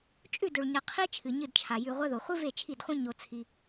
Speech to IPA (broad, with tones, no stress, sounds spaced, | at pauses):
t͡ʃʼ ʉ˦˨ d ɵ˨ ɭ ɲ ɐ˨ qʰ i˦ t͡ʃʰ ɨ˨ ɲ ɨ˦˨ d t͡ʃʰ a˨ j ʉ˨ ʁʷ ɐ˦ ð o˨ χʷ ɨ˦ v e˦˨ t͡ʃʰ i˦˨ d χʷ ĩ˦ ɲ o˦ t͡sʰ i˦